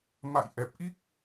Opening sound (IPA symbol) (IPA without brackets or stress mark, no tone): m